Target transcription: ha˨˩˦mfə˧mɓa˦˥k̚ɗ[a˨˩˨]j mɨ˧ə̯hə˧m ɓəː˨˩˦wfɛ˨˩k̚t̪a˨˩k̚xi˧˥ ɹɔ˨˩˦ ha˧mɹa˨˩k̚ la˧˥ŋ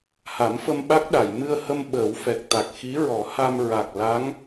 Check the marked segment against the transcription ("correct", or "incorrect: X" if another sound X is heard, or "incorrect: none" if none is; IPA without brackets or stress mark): correct